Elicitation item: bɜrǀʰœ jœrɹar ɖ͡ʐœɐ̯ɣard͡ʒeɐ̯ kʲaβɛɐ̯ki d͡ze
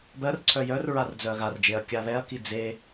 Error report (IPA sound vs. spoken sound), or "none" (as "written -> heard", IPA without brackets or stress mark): ɖ͡ʐ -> d͡z